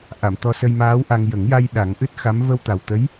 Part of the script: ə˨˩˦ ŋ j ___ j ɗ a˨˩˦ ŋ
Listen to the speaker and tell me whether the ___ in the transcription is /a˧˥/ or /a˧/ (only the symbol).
a˧